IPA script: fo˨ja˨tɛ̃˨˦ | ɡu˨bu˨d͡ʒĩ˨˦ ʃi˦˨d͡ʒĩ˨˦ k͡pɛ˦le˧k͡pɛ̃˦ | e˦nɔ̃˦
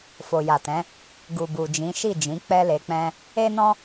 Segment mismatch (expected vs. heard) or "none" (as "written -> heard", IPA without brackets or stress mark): none